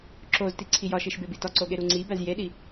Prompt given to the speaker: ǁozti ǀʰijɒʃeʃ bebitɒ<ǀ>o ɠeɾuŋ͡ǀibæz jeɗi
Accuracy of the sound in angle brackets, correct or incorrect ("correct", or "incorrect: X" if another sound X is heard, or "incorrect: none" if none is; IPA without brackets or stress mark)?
correct